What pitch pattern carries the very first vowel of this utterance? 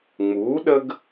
rising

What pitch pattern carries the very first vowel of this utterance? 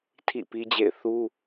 falling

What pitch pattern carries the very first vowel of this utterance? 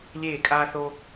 falling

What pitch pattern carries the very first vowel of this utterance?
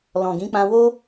low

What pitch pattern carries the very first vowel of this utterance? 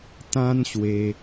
high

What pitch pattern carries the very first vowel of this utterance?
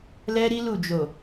high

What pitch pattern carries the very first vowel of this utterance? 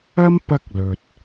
high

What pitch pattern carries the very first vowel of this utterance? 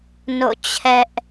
falling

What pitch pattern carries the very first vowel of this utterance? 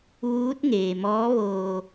rising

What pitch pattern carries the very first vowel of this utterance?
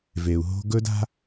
low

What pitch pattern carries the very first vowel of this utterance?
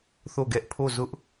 falling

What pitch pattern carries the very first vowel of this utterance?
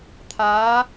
rising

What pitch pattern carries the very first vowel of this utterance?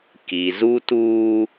low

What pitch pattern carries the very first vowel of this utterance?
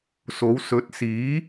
rising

